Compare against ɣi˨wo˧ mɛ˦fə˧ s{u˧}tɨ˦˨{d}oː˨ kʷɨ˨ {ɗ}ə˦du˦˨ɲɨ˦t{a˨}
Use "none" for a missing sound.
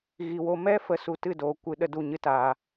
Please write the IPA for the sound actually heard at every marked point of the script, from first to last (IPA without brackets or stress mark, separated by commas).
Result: u˧, d, ɗ, aː˨